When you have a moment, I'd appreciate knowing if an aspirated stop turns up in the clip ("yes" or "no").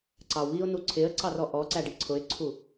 yes